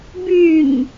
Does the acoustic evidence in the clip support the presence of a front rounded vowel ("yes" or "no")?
yes